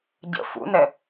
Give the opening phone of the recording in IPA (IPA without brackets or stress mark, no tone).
ɟ